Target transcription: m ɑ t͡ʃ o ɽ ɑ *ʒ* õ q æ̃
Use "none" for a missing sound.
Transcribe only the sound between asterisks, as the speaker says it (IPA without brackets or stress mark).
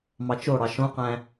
ʃ